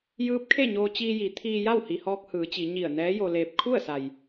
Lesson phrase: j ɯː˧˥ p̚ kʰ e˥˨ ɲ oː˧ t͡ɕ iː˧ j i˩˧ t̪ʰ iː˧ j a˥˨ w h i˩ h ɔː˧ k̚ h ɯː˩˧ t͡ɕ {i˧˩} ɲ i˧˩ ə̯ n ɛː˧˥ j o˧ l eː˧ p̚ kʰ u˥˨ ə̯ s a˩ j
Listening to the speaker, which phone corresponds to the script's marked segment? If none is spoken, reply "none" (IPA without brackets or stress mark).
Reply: i˩˧